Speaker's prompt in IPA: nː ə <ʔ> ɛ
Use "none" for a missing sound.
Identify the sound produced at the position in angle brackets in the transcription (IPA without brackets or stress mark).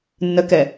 k